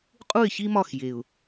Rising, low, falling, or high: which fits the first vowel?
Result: falling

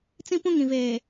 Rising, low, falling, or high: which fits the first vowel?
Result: high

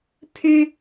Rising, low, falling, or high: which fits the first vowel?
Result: high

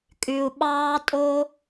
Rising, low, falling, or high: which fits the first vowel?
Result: low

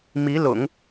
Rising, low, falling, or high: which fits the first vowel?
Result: rising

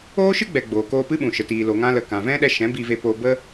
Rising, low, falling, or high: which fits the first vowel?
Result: high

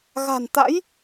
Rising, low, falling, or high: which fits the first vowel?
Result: low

